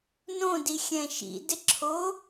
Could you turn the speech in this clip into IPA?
nõdixʲɛ̃ ʃḭdɪǁʰo

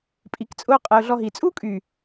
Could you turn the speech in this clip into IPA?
pʼi˨kt͡sʼʊː˦qʼɛ˨ʊ̯ ɮɔ˧ɦi˨ t͡sʼu˦kʼy˨

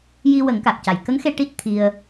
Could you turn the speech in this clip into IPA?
ji˧ wə˨˩˦ŋka˨˩k̚ca˨˩j kə˧˥ŋxe˧ ʈi˦˥t̚ t̪ʰi˧ə̯

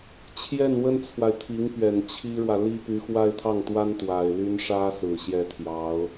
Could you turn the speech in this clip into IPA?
t͡ɕʰjɛ˥˩nwə˥nt͡sʰwa˨ɪ̯ t̪ʰi˧˥ŋpɥɛ˨˩n t͡ɕʰi˥ɻwä˨li˥ py˧˥xwa˥˧ɪ̯t̪ʰɑ˥˩ŋt̪wa˥n t̪wa˨˩ɪ̯ ly˥n ʂä˥sɹ̩˨˩ ɕjɛ˥˩t̪ʰjɑ˧˥ʊ̯

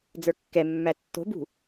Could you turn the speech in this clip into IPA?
d͡zə˞kːɛmːæ tːo̤bṳ

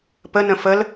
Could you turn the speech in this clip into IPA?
pənə̃ fəl

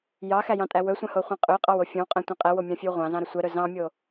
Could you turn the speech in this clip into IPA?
jɑxæjɑ̃tʼæ wɵsʷɛ̃hoχʷɛ̃ qʼøqʼɑwo fʲõwqʼɛ̃tʷɑ̃ qʼɛwomʲɑ̃fʲøw ʁʷɑ̃zɑ̃ɾɵ sʷɛɾɵ zɑ̃mʲo

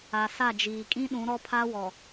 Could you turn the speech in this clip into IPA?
a˨sa˦˨d͡ʒiː˨ kʼĩ˦ ɗũ˨˦ɾɔ˦pʰa˦wɔ˨

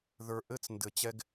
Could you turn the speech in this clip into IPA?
ðə˞˨ʔɘ˦t͡s ndɘ˨t͡ɕɛ˦ɡ

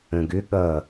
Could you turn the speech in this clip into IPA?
ə̃ɡʏ ɠʌ

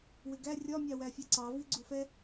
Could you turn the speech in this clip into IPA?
wɪɡæ rʲɒ mʲɑwæfʲɛǀɑ viɡ͡ǀufɛ

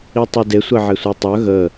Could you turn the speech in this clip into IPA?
itˤude sʷeʕesʷetˤœ ɣə

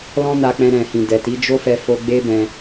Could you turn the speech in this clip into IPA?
lɔ̃˦na˧k͡pɛ̃˧ ɾɛ̃˨hĩ˨ dɛ˨ti˨˦d͡ʒo˦fɛ˧ fo˧ɡ͡be˦ bɛ̃˧

